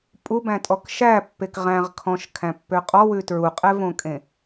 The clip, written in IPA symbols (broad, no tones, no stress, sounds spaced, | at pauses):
pʼ u b æ̃ tʼ ɔ k ʃ æ pː e k ʁ æ̃ ʁ kʰ ɔ̃ ʃ kʰ æ̃ pː ø qʼ ɔ w ʉ t ɹ u qʼ ɛ v õ kʼ ẽ